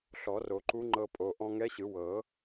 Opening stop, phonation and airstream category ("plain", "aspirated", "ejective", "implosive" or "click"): click